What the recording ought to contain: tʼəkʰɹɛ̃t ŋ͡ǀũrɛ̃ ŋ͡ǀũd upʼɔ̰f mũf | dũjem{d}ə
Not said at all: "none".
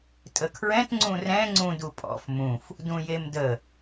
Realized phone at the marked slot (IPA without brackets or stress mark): d